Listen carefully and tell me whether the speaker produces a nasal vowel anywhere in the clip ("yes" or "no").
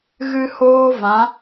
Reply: yes